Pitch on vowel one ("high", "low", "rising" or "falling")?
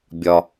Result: low